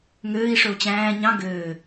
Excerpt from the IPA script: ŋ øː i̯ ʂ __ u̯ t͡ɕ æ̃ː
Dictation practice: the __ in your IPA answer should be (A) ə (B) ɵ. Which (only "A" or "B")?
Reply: B